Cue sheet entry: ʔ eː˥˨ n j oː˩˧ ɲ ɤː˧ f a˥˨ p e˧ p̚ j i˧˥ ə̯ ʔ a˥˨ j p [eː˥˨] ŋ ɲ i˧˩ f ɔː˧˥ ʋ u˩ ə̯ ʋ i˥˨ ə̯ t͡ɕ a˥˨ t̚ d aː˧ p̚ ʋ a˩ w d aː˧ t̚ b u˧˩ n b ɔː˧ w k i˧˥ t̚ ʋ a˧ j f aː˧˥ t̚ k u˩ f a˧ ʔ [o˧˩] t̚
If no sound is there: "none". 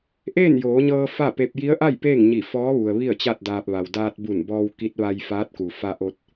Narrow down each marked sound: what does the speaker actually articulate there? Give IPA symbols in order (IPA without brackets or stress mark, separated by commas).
eː˥˨, o˧